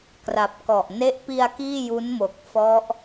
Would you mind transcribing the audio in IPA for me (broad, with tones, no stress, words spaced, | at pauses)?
kra˨˩p̚kɔ˨˩ʔ ne˦˥ʔpi˧a̯ kiː˥˩ju˦˥nmo˨˩k̚ fɔ˦˥ʔ